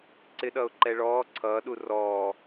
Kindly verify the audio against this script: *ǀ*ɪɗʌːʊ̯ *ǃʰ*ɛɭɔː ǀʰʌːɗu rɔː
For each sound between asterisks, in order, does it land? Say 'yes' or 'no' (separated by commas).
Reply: yes, no